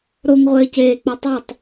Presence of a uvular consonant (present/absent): present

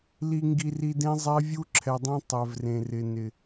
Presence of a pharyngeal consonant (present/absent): absent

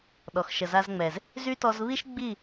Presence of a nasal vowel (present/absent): absent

